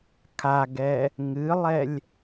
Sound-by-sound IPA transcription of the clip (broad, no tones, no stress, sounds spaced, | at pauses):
kʰ a ɡ ɛ | ŋ ɨ lˠ ɛ lʲ